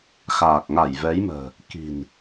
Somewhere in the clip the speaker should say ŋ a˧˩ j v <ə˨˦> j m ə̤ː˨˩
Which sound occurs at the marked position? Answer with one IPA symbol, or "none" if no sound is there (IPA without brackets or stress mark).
ɛ˨˦